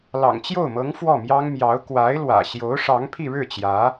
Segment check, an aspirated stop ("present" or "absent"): present